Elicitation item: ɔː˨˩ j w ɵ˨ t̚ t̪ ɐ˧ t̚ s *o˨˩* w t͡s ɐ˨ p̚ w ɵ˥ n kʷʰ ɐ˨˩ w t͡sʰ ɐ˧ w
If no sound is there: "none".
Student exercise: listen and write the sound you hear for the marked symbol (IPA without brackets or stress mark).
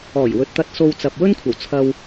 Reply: o˧